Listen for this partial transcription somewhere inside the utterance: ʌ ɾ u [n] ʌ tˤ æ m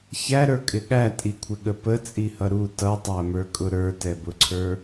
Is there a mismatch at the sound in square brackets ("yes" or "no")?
yes